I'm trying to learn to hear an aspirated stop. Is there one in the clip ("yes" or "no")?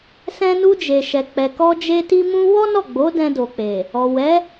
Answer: no